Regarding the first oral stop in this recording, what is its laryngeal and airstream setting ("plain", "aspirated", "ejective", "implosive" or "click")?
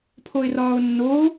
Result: aspirated